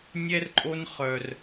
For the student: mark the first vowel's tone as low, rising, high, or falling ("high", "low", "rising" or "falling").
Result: high